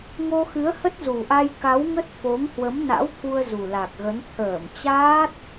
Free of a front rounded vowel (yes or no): yes